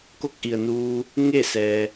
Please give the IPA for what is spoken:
ko˥˨k̚ʔi˩ə̯nuː˧ | ŋe˥˨ sɛː˩

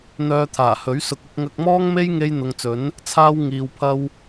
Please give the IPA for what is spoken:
n̪œː˧t̪ʰaː˨˩hɵ˨˥ɥsʊ˧k̚ ʊ˧k̚ŋɐ˧k̚mɔː˥ŋme˥j ŋe˥j n̪ʊ˨ŋt͡sɵ˨˥n | t͡sʰaː˥w ŋiː˧wpʰɐ˥w

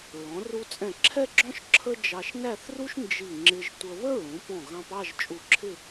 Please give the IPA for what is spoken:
ɹɔ̃˩˧ru˧t͡sʼɛ̃˧˩ ǁʰɛ˥ɡ͡ǁɔ̃˥ʃ ǁʰə˥ d͡ʒɑ˧ʃnæ˥˧θru˥ʃ nd͡ʒi˧˩ŋ͡ǁɪ˧ʒ tʷə˧ βə˥ɹũ˩˧pɔ̃˧˩ ɣɑ̃˧pɑ˥˧ʒ t͡ʃʼu˧˩ǁʰɪ˥˧

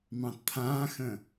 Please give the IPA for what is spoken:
mɑ̃tt̪ʰãːxə̃

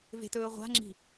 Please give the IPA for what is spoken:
ve̤tɵːʁʷa̤ŋ͡ǁi̤

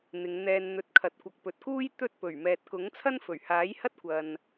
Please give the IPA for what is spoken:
n̪ɪ˨˧ŋn̪ɛː˧n n̪ɵ˧t̚ kʰɐ˨˥t̚ kʷɐ˨k̚pɵ˨t̚kuː˥j t̪ɵ˥t̚ pɵ˨˩ɥmɛː˨t̚ kʊ˨˥ŋ t͡sʰɐ˥nfɵ˨˩ɥhaː˨˥jhɐ˥t̚ kʷɐ˨n

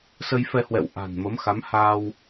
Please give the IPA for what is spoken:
sə˧jfɛ˧hwɛ̰˧˨w ʔa̤˨˩nmə˨˦mxa˨˦m ha˧w

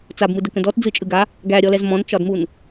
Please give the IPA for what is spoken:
t͡sabmɯ dəkə̃dɔt d͡zɯt͡ʃʼɯɡa | ɡæɾʲɔlɛz mɔ̃nt͡ʃɒdmun

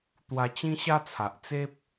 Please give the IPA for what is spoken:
t̪wa˧t͡ɕĩ˦ɕa˦t͡sʰa˨ʔ t͡se˦p̚

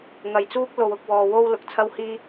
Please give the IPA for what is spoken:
ŋɐ˨jt͡suː˥k̚ lo˧wʊ˨˥k̚wɔː˧ wo˥w lʊ˨k̚t͡sʰɐ˥whiː˥

